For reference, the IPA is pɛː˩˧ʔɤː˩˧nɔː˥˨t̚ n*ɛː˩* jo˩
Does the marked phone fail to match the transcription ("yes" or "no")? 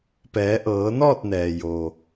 no